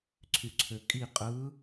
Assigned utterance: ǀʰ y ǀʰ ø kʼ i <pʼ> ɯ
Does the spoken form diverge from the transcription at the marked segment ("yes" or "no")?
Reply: yes